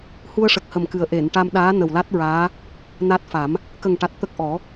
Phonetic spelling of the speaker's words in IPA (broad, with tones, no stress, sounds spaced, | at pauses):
h u˧ ə̯ ʂ ə˨˩ k̚ h ə˨˩ m k ɨ˨˩ ə̯ ʔ e˨˩˨ n ʈ a˧ m ɗ aː˧˥ n ə˨˩ w l a˦˥ t̚ ɹ aː˧˥ | n a˦˥ t̚ f a˨˩˦ m | k ə˨˩ ŋ ʈ a˨˩ t̚ t̪ ə˦˥ k̚ ʔ ɔ˨˩˦